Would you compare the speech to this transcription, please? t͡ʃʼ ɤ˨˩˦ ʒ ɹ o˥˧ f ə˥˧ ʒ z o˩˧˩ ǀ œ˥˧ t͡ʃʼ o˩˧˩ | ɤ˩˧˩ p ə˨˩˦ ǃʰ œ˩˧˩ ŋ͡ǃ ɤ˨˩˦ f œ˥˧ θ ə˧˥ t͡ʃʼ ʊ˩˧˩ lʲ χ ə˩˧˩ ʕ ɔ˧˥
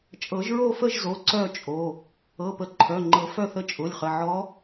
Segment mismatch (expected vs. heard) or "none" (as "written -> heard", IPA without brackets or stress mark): none